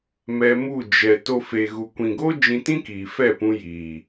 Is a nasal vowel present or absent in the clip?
present